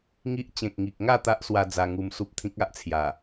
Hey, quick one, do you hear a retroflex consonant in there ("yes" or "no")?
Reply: no